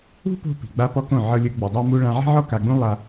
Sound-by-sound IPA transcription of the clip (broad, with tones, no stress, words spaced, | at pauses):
ṳ˦po̤˧ pi̤˨ɡ͡ba˦pɔ˦kõ˦˨ ʕɤ˧lʲɯ˧ ɡ͡bu˨dˤa˦ mu˦ ɭã˧ʕi̤˦ʕɔ˦ ka˧ɡ͡bũ˦ lˠa˦